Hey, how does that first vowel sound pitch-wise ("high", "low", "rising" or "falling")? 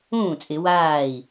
falling